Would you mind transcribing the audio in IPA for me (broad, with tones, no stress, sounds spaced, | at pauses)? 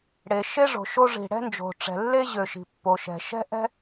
ɽ e˩ ʃ e˥ ʐ o̤˩ ʃ o˥ ʐ i̤˩ ɽ ɛ̤˥ n d͡ʒ o̤˩ ʈ͡ʂ ɛ̤˩ lː e˥ ʑ ø˩ ʃ i̤˩ pː o˩ ʃ ɛ̤˩ ʃ ɛ̤˥ ʔ ɛ̤˥